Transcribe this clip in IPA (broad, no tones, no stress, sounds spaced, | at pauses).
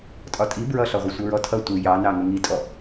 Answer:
tʼ ɒ tʼ i b ɹ ʌ ɬ ɒ ʁʷ ʌ sʷ ʌ ɹ ɔ tʰ ʌ tʷ i j ɑ n ɑ ŋ ʊ ŋ i tʼ ɔ